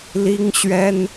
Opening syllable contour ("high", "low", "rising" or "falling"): high